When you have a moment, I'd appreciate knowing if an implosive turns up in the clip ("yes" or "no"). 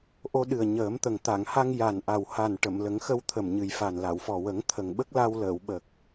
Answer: yes